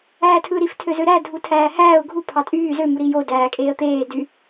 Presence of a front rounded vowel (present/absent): present